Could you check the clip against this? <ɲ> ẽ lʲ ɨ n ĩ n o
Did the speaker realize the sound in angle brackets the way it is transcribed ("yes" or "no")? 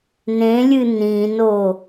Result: no